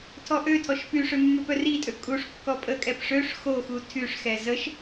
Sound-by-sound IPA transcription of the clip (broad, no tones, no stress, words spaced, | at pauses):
tʰɔʔøtʰɔʃ pyʂø mːøpœritʼø kʼuʂ kːɔpʼəkʼɛp ʂøʂ xoxu tʰyʂxɛ zəʃ